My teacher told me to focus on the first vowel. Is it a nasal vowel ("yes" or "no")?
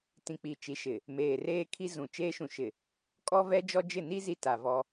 yes